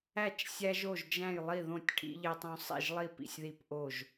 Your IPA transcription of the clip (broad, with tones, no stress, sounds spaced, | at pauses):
æ˥˩ t͡ʃ sʲ æ˦ ʒ o˥˩ ʒ d͡ʒ æ̃˥˩ j lˠ i˥˩ ð õ˥˩ tʲ ʈʰ ḭ˦ ʎ e˦ tˤ õ˦ sˤ ḭ˥˩ ʒ lˠ i˥˩ p ḭ˥˩ sʲ ð i˥˩ p ʔ o˥˩ ʒ